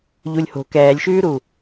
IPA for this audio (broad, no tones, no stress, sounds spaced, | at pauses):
ʎ u lʲ h o̤ k ɛː lʲ ʃ ʉː ɾ u